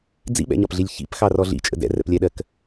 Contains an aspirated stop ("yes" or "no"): no